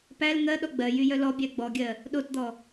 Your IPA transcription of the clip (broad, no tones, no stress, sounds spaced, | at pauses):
p æ l ŋ ɜ ɗ ɔ ɡ͡b ɜ j y j œ l ɔ bʲ æ ɡ͡b ɔ ɡʲ ɜ | ɗ o t d̪ ɔ